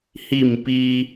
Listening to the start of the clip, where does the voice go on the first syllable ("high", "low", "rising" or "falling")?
falling